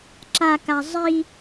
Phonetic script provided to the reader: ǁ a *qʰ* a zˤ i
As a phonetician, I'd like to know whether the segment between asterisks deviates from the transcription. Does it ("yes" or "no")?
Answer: yes